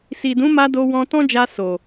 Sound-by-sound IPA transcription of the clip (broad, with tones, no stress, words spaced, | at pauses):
si˨dũ˨˦ma˧ do˧wɔ̃˧tɔ̃˦d͡ʒa˧ so˨